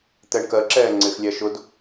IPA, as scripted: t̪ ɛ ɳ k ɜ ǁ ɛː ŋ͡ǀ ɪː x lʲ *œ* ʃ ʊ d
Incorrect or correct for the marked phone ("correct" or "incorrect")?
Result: incorrect